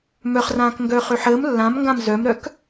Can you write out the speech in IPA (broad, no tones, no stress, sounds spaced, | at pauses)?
m œ χ r ãː k ŋ ɡ œː χ ø ħ əː m lː ã m ŋ ɡ ã m z œ m ɾ œ k